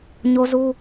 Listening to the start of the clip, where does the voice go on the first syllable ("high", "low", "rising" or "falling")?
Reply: high